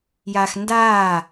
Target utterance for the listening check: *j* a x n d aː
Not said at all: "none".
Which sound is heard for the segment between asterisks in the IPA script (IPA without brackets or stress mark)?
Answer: j